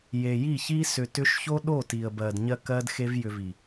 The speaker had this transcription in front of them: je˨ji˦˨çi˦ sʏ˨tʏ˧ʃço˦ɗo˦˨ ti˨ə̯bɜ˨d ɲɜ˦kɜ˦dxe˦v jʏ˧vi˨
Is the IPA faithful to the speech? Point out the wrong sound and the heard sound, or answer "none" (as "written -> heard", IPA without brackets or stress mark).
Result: none